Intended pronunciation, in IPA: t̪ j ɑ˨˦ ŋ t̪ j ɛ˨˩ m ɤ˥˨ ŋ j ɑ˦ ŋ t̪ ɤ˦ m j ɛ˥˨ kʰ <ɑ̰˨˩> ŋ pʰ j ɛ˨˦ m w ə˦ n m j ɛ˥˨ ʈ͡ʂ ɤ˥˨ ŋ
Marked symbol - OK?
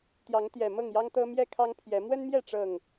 no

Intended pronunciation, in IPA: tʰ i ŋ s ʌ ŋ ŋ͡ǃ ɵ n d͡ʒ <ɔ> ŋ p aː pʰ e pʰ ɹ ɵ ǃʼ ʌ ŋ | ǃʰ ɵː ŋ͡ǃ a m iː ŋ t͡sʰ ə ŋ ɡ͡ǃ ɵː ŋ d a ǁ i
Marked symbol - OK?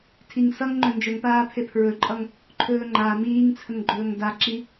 no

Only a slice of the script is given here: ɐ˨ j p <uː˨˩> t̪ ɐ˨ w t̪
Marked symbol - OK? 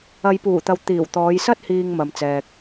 yes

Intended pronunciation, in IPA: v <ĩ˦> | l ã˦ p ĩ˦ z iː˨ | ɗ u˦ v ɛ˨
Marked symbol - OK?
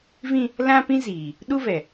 yes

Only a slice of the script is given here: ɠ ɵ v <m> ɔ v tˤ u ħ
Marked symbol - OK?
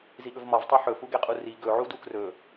yes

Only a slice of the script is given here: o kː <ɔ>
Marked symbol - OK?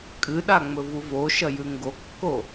no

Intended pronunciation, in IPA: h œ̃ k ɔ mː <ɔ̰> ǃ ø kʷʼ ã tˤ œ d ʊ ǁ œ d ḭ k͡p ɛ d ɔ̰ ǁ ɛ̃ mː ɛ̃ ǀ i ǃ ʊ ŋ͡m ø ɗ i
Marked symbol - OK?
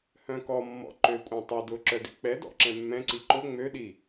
yes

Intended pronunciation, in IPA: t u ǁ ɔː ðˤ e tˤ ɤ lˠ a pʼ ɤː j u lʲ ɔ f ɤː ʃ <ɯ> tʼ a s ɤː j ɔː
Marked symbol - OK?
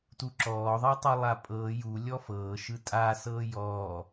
yes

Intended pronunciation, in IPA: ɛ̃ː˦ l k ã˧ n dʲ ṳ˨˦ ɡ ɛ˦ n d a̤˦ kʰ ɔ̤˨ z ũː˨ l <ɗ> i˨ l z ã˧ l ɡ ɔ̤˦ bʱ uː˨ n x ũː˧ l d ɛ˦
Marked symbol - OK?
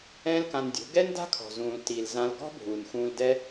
no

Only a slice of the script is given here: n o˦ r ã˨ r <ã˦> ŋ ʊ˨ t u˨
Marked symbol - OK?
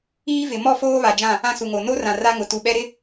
no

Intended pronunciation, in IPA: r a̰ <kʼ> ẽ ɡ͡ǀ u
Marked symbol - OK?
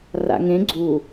no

